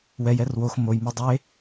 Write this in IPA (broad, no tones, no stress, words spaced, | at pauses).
wɛjɛr wox mojmo dˤe